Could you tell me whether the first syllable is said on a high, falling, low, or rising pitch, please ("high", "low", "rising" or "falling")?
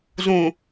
low